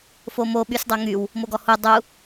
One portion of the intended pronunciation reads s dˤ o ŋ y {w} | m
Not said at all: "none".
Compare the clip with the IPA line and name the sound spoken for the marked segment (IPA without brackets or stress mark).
w